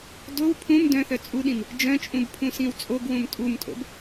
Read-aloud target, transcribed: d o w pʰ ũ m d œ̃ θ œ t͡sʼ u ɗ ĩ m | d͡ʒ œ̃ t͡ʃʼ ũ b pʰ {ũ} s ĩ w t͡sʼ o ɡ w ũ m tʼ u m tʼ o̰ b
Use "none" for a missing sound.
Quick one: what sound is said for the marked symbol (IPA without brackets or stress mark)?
ũ